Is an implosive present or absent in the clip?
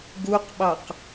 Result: present